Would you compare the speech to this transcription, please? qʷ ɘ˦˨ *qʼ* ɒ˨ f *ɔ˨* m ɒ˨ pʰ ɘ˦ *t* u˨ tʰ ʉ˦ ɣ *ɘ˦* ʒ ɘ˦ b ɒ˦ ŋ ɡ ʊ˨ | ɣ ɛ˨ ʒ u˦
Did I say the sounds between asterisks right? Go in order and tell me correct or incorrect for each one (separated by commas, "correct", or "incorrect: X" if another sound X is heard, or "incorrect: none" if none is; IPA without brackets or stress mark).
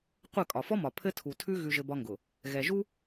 incorrect: kʼ, incorrect: ɔ˦, incorrect: tʰ, incorrect: ʉ˦